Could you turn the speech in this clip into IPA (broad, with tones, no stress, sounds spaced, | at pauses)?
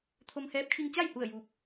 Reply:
t̪ʰ o˧ m h ɛː˧˥ p̚ kʰ i˧ ŋ t͡ɕ a˥˨ j h u˧˩ ə̯ j uː˧ p̚